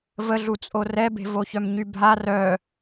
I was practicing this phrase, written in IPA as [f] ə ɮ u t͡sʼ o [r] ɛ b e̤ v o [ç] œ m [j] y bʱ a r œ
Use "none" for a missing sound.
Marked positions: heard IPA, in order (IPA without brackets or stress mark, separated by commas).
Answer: v, r, ç, ɲ